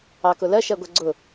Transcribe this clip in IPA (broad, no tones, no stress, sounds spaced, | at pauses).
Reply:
ɑ k ʊ l ɜ ʃ ɜ ɡʷ ɛ ɡ͡ǀ ʊ